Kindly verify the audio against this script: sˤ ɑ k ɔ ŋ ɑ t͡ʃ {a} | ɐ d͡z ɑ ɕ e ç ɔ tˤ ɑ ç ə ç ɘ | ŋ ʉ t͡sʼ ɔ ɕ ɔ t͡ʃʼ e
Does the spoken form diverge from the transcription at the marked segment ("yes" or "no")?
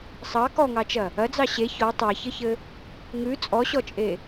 yes